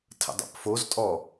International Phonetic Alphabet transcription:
tʰə̰dˤə̰pfoztʼɔ

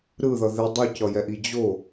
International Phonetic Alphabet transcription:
ɾɯðʌ ði dˤucʌjɛʔi d͡ʑo

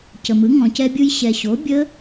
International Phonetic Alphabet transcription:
cə˨mɯ˩˥ ŋɔ̃˨cɛ˦˥bʲɯ˦˥j ɕɛ˨ɕo˩˥ bʲə˦˥

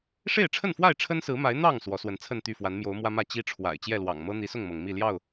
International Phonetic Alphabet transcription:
ʂe˥˨ɪ̯ʈ͡ʂʰə˥˨nfwa˥˨ɪ̯ ʈ͡ʂʰə˦nsɹ̩˨˦ma˨˦ɪ̯ n̪ɑ˥˨ŋ swɔ˨˦swə˨˦nt͡sʰə˥˨nt̪y˥˨ fwa˨˦n mjo˨˦ʊ̯mwä˦mä˥˨ t͡ɕi˦ʈ͡ʂʰwa̰˨˩ɪ̯ t͡ɕjɛ˥˨lwɑ̰˨˩ŋ mɤ˦n̪i˨˦sʊ˥˨ŋmɤ˩ŋ mi˥˨ ljɑ˥˨ʊ̯

